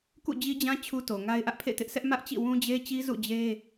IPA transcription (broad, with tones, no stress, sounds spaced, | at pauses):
k ṵ˦˨ d͡ʑ i˦ d͡ʑ ã˦ t͡ɕʰ u˦ t o˨ ŋ a˦ ɪ̯ ʔ ä˦ ʔ pʰ ḛ˦˨ t ɪ˦ ʔ s ɛ˦ ʔ m ä˦ ʔ t͡ɕ ḭ˦˨ w ũ˦ d͡ʑ e˦ t͡ɕ i˦ z ṵ˦˨ d͡ʑ e˦